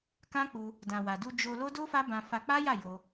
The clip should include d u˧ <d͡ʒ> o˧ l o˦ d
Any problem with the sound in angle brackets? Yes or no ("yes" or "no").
no